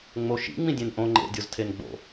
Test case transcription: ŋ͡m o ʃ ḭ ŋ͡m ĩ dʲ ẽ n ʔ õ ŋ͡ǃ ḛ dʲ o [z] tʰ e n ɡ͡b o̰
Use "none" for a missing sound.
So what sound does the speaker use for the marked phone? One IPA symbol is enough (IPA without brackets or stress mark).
z